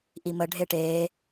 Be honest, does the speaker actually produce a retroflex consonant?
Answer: yes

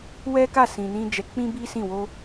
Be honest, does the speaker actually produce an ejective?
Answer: no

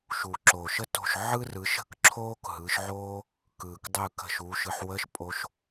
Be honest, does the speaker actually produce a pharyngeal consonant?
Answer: yes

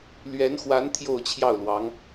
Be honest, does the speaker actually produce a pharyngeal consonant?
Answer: no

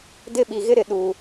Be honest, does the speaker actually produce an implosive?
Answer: yes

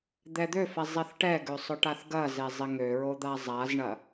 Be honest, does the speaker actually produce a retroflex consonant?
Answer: yes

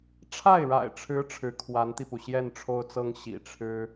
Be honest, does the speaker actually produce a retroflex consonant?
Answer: yes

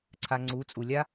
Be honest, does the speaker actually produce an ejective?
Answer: yes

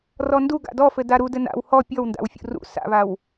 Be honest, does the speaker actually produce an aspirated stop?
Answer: no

